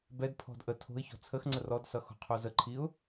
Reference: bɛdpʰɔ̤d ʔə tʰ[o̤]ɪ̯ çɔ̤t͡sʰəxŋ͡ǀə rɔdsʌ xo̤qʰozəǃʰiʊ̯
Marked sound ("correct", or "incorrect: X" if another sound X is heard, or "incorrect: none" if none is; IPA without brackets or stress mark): correct